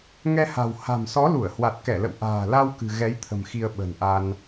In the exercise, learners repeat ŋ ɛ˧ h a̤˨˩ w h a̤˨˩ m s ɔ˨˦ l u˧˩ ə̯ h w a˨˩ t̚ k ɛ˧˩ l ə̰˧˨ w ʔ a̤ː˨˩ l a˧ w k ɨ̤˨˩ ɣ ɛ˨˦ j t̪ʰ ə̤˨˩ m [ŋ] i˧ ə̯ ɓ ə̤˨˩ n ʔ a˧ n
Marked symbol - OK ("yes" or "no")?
no